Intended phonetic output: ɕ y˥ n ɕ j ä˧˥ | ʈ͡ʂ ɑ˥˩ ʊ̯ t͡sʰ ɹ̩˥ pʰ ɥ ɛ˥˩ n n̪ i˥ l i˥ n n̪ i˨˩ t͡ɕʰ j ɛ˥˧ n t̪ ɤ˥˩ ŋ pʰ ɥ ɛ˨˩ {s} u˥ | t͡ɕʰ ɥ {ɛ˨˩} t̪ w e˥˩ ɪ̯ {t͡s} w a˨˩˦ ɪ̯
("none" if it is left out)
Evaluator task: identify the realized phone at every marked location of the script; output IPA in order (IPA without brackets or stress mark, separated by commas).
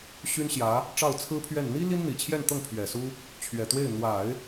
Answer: s, ɛ˨˩, n̪